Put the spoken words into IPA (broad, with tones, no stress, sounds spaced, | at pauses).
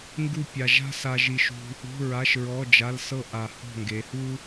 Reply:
ŋ ɡ u˥˨ pʲ a˧ ʒ a̤˥ s a˥ ʒ i˥ ʃ ṳ˥ | ṳ˧˥˧ ɹ a˧˥˧ ʃ ɹ ɔ˧˥˧ d͡ʒ a˧˥˧ l s ɤ˥ ʔ a˧ h ɔ̤˥˨ ŋ ɡ e˨˥ h u˥